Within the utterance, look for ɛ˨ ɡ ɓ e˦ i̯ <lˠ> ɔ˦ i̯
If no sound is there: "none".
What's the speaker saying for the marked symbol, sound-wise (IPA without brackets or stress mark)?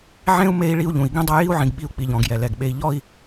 ʎ